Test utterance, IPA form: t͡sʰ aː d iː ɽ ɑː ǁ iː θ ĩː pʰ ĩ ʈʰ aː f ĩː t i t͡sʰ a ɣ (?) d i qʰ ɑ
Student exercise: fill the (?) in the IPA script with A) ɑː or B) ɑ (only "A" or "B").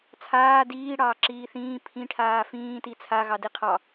B